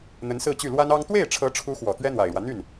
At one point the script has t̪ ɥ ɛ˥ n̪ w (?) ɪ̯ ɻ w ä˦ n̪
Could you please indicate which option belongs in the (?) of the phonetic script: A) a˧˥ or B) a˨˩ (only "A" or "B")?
B